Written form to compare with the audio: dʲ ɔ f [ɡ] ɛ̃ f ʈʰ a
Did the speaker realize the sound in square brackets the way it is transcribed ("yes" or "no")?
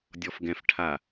yes